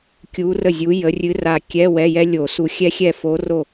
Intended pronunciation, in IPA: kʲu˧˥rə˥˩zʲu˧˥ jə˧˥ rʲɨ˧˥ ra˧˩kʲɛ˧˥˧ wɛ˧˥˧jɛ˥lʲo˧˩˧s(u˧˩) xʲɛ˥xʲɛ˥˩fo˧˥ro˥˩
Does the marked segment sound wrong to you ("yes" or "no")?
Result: no